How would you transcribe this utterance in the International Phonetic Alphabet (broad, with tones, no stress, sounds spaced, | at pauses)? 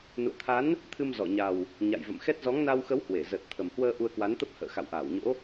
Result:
n ṵ˧˨ ə̯ t̪ʰ a˨˦ n | t̪ʰ ɨ˧ m z ɔ˧˩ ɲ a˨˩ w | ɲ a̰˧˨ j v ə̰˧˨ m x ɛ˦˥ t̚ z ɔ˨˦ ŋ n a˧ w x ə˨˦ w h w e˧˩ z ə˨˩ t̚ t̪ʰ ə˨˩ m h w əː˧ ʔ u˧ ə̯ k w a˨˦ n t̪ ə˦˥ p̚ h ə̰ː˧˨ x a̰˧˨ w ʔ aː˧˩ w ɲ o̰˧˥